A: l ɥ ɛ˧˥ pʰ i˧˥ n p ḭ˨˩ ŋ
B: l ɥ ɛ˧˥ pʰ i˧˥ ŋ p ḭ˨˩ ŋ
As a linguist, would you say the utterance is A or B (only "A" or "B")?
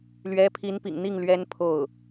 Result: A